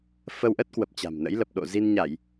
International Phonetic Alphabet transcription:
f ə˧ w ʔ ə˦˥ t̚ k w ə˨˩ p̚ t͡ɕ a̤˨˩ m n ə̰˧˥ j l ə˨˩ p̚ ɗ o̰˧˨ z i˧ n ɲ a˧˩˨ j

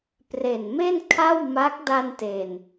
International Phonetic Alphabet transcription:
p r e˨˩ n m e˥˩ n kʰ a˥˩ w m a˦˥ k̚ d a˧ n t e˨˩ n

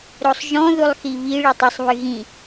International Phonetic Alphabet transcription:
ɾ o sˤ ʒ ɔ̃ ð u lˠ x i β i ɭ i tˤ ɤ sˤ β ɨ ɣ ĩ

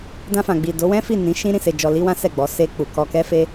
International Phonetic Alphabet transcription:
d ã˧ f ã˨ ɡ͡b i˨ d o˨˦ w ɛ̃˦ f i˦˨ n ĩ˨˦ ʃ ĩ˦ ɾ ĩ˧ s e˧ d͡ʒ ɔ˧ l i˦ w ã˦ s ɛ˦˨ ɡ͡b ɔ˨˦ s e˦ k͡p u˧ k ɔ˧ k ɛ˦ f e˦

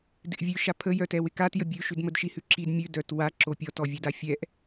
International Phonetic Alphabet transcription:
d ɪ ʔ vʲ ʉ ʃ a pʰ ə j œ t ɛ w ɪ k a t j ə bʲ ʉ ʃ ʉ d m ə d ʃ i h ʉ ǁ i d mʲ ʉ d œ t w a ǁ o pʲ ɔ t ɔ vʲ ɛ d a fʲ ɛ ʔ

